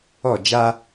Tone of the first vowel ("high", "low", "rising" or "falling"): falling